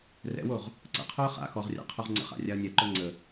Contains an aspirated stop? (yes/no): yes